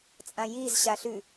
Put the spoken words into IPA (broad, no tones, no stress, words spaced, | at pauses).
t͡sʼãjiz ɕaɬʉ